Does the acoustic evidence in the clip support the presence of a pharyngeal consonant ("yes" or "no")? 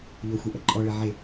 yes